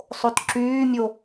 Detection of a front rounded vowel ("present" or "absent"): present